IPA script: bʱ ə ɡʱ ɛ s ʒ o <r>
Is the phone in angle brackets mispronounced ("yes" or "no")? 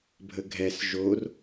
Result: no